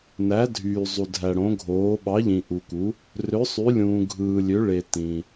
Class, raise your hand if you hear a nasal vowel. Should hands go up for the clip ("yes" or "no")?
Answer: yes